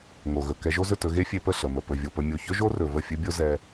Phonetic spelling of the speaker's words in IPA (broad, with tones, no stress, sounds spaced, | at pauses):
ŋ o˨ ɣ ɵ˨ k ɛ˧ ʒ o˦ z ɵ˦˨ t ɵ˧ ɣ e˦ fʲ e˧ p ə˦˨ ɬ ə˨ m ə˨ p ɵ˨ vʲ o˨ p ə˧ mʲ o˨ ç ɵ˦ ʒ o˦ r ɵ˨ v ə˦˨ fʲ ɵ˦ bʲ o˦ z ɛ˧